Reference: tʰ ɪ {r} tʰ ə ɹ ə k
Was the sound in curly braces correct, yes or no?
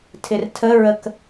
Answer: yes